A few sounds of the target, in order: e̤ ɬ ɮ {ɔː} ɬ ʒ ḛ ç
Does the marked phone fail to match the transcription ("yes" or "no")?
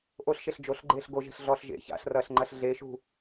no